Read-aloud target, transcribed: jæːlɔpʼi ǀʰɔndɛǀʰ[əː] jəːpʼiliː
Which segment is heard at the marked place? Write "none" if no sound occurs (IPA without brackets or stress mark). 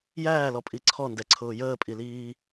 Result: ʊː